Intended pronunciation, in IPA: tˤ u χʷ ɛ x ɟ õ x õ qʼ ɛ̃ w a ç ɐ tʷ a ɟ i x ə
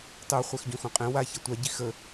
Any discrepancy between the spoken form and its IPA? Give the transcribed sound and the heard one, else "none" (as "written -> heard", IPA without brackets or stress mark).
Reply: none